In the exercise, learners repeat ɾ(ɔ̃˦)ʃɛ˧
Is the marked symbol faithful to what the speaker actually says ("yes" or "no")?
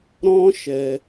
yes